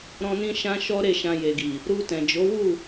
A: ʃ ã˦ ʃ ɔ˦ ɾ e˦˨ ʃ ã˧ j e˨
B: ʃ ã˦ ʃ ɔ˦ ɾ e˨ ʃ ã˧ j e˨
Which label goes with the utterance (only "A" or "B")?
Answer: A